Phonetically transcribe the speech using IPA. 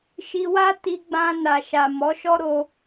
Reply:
ʃ i˧ w a˦ t i˧ ɡ͡b ã˧ n a˨ ʃ a˨ m ɔ˨˦ ʃ ɔ˦ ɾ o˧

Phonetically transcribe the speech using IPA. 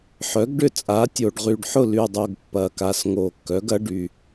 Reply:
ħ œ˩˥ ɡ ɖ ʏ˥˨ t͡sʼ a˩˥ tʲ o˨˩ ɖ ʁ y˨˩ ɖ ħ ʊ˥˨ l y˨˩ dˤ o˨˩ ɡ pː ɐ˨˩ k a˨˩ s ŋ o˨˩ kː œ˩˥ ɡ ɐ˩˥ ɖ y˨˩

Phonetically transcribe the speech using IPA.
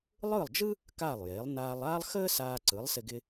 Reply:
lˠ ɯ˥˩ lˠ d͡ʒ ɯ˥ | k aː˥˩ lˠ j eː˩˥ lˠ n aː˧ lˠ aː˥ lˠ x əː˥ s aː˧ ǀ ɯ˩˥ lˠ s ɪ˧ ɡ ɪ˧

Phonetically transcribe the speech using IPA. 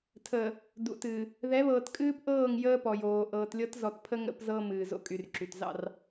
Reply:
tʰ əː˨ | d ṵ˨ t ɨː˨ | ð ɛ˨˦ β ɤː˨ t kʼ ɨː˦ p ʔ ɤː˦˨ ŋ j əː˦ p ɔ˨ j oː˨ ʔ ɤː˨ t lʲ ɤ˦ t z ɔ˨ t pʰ ə˦ ŋ ə̰˦ p z ɤ˦ m ɨː˨ z o̰˦ kʼ y˨ r ǁ y˨ t z ɑ̰˦˨ r

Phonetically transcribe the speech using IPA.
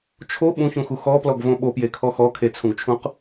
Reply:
t͡ʃʰ o ɓ ũ ç ũ x u x ɔ p l ɔ ɡ v õ ɓ o p j e kʰ ɔ x ɔ kʰ e t͡sʰ ũ ɡ t͡ʃʰ ũ q

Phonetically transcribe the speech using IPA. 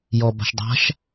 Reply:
j ɔ b a̤ ʃ dˤ a̤ ʃ

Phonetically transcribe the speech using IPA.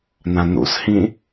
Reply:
n ã n ṵ s h ĩ

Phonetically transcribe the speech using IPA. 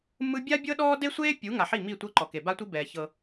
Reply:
m ɯ˦ bʲ a˦ bʲ ɤ˦ ɗ ɔː˦ d e˦ sʷ eː˦ pʲ u˨˦ ŋ a˨ ħ i˦˨ m i˦˨ tʷ ɤ˦ ǃ ɔ˨ k e˨ b a˦ tʷ i˦ b ɛː˨ ç ɤ˦

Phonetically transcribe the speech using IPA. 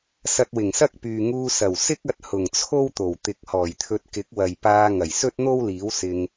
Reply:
s ɐ˧ t̚ w ɪ˨˩ ŋ s ɐ˥ k̚ p yː˨ ŋ uː˧ s ɐ˨˩ w s ɪ˥ k̚ ɐ˧ t̚ h ʊ˨˩ ŋ t͡sʰ o˥ w t̪ o˨˩ w t̪ ɪ˨˥ k̚ h ɔː˨˩ j t̪ʰ ɵ˧ t̚ k ɪ˨˥ k̚ w ɐ˨ j p aː˧ ŋ ɐ˨˩ j s ɵ˥ t̚ n̪ o˥ w l iː˨˥ w s ɪ˧ ŋ

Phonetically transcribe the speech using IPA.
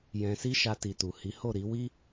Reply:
j ɛ̃˧ s i˦ ʃ a˧ t i˨ t u˨ h i˨˦ h o˦˨ ɾ i˨˦ w i˦

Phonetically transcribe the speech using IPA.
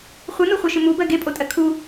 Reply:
χʷ ɨ n u χʷ ɜ ʃ ɨ m u b ɜ ɡ e pʼ o tʼ ɜ kʰ u

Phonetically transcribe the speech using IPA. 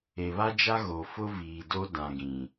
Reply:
e˨ β a˦ d͡ʒ a˦ ɣ o˨ f ʊ˦ v iː˨ d o˦ d ã˨ ɡ ĩ˨

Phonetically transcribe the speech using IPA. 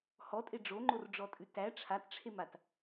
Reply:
h ɔ tʼ e ɖ͡ʐ o ŋ͡ǃ o r ɖ͡ʐ ɔ tʼ ʉ t æ ʈ͡ʂʰ a t ʈ͡ʂʰ e m a t

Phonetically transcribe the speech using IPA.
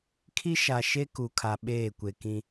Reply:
kʰ i˦ ʃ a˨ ʃ e˦ k u˨ kʰ a˨ ɓ eː˦˨ kʷ e˨ k ĩ˦

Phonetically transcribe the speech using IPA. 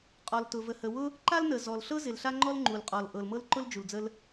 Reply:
qʼ ɔ˩ l t ʊ˩ v ə˩ h ə˩ w ʊ˥ | ǃ a˥ l n ə˩ z ɔ˩ l ɬ ɤ˥ z ɪ˩ l ɬ a˥ ŋ͡ǃ ɔ˥ l ŋ͡ǃ u˩ l qʼ ɔ˩ l ʔ ɤ˩ l m ɤ˥ l ǃ ʊ˥ l d͡ʒ u˩ l d͡z ə˥ l

